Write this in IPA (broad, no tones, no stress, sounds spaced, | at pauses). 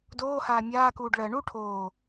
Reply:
d oː h aː mʲ aː k uː ɖ ɭ ɜ ɳ u ʈʰ oː